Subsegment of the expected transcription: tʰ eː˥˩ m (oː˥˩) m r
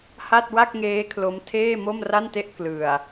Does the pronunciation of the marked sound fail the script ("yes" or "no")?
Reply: yes